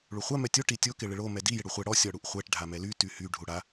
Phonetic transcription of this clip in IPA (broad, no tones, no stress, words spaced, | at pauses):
ɭuχʷa mɛtʲo ʈitʲo kɪɭɪɭo mɛdi jɪɽuχʷɛ ɽɔ sʲɔɽuʔχʷɛʈ ɖʱamɛly tyhy ɖʱuɽa